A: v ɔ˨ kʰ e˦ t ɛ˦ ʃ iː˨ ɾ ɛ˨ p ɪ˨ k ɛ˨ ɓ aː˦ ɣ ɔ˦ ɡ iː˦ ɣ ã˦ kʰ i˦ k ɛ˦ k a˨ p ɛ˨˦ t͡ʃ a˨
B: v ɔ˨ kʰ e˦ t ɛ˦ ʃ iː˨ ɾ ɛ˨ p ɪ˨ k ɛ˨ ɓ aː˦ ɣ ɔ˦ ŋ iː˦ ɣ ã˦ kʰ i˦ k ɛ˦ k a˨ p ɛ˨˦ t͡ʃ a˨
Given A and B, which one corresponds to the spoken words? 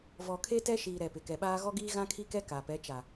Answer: A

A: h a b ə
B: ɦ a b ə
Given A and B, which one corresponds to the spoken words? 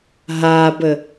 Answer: B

